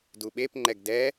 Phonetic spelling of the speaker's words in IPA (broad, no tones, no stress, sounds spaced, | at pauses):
d u ɓ e p ŋ͡ǃ ɛ ɡ d ɛ